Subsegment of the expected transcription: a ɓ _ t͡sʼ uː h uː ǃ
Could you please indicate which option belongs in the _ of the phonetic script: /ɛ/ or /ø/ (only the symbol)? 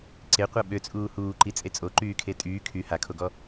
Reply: ø